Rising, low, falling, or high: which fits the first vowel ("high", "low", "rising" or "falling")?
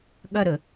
falling